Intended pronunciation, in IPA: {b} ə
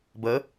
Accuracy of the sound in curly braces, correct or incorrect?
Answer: correct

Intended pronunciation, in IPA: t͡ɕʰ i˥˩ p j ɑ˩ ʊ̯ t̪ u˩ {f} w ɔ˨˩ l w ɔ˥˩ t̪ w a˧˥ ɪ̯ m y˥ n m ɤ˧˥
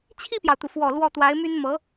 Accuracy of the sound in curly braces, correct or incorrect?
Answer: correct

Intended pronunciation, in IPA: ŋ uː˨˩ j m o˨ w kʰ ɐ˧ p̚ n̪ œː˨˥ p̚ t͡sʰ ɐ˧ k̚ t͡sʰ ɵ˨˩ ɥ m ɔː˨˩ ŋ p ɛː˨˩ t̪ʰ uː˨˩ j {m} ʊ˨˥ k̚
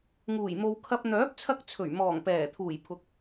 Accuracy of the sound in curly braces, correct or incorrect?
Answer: incorrect: pʰ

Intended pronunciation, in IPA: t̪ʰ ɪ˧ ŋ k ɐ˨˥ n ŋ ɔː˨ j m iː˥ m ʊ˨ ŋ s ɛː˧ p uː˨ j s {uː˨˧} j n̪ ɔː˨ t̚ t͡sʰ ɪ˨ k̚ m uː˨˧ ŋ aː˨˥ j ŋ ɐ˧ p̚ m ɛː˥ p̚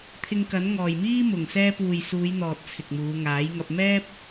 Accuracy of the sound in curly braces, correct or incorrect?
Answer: correct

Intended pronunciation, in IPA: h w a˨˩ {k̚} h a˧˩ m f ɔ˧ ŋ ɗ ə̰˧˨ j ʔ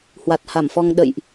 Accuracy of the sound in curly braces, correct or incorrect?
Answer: incorrect: t̚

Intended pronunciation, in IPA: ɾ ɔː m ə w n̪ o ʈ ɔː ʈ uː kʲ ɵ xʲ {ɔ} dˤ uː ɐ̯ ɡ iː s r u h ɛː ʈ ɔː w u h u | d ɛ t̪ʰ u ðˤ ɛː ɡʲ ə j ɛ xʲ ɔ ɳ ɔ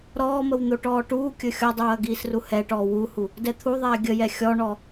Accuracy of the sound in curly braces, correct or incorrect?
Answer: correct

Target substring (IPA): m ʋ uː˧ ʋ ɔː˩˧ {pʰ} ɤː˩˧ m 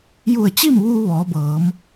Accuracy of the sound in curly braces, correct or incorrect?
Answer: incorrect: b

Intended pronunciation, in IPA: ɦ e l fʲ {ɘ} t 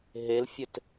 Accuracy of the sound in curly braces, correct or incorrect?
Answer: correct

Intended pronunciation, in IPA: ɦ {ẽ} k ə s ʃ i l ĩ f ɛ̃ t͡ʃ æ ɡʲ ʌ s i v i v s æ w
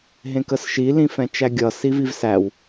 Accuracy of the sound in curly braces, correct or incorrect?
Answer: correct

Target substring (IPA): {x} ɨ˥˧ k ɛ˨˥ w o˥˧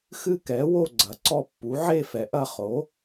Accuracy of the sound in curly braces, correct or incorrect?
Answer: correct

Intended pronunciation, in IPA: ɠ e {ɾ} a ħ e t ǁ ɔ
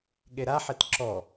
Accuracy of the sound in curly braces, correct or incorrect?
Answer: correct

